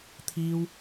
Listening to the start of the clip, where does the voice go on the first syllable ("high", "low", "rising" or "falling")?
high